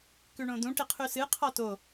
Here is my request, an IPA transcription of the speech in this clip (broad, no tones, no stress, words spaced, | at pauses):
kʉɳõd̪ũ ʈiqʰʉsɨ qʰɔto